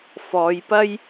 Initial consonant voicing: voiceless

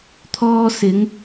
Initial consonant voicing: voiceless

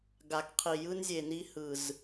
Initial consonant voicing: voiced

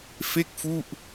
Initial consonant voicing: voiceless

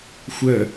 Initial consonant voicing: voiceless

